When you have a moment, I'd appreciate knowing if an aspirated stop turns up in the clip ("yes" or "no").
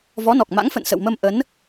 no